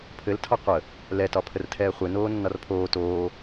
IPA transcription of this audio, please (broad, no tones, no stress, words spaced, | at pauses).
pʰɘltʰɒ qʷə | lɛtɒpʰərtʰɛː χʷenoːnːɒr pʰoː toː